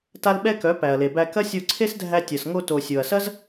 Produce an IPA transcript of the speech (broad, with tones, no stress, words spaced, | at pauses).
ta˦lɓɛ˦kœ˨˦ pæ˨ɐ̯le˨bæ˧ kɐ˦sʲo˧ ǀʰe˦sdʱæ˧ tʲɐ˨s ŋo˧to˨ sʲo˨ɐ̯sɐ˦z